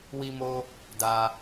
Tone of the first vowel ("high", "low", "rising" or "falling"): high